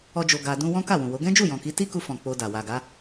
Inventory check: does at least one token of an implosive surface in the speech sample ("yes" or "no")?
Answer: no